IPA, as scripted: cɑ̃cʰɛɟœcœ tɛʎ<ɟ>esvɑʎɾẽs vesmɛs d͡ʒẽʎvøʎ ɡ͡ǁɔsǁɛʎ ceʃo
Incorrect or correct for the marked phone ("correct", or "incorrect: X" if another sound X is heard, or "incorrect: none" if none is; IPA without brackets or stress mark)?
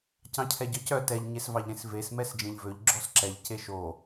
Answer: incorrect: ɲ